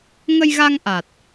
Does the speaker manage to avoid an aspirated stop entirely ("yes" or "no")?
yes